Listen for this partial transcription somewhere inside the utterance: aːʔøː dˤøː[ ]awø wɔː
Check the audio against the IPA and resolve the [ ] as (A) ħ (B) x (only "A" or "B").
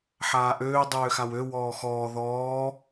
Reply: B